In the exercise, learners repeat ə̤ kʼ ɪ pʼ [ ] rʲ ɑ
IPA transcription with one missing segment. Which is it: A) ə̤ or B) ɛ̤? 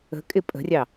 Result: A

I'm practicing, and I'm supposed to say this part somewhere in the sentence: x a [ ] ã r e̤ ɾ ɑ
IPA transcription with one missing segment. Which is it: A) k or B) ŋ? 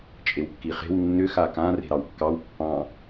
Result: A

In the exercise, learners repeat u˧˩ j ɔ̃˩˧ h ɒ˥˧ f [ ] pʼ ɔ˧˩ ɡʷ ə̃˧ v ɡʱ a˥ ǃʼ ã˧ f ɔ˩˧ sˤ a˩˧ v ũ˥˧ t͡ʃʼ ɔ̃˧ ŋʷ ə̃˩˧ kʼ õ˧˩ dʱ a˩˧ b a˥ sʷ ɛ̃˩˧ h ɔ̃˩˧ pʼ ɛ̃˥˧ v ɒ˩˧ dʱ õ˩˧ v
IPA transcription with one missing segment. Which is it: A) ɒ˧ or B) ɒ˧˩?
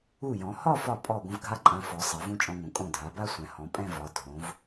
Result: B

